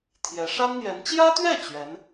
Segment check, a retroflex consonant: present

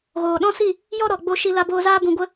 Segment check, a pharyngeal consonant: absent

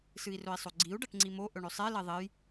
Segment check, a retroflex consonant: present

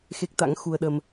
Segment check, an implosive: present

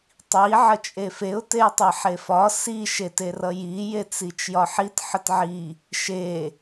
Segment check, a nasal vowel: absent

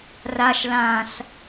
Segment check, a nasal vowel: present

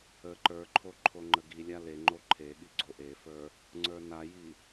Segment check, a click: present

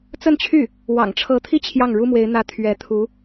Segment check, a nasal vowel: absent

